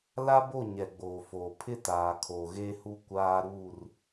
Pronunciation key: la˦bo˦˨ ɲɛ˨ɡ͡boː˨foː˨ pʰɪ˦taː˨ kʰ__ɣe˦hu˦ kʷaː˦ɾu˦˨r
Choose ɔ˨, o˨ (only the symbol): o˨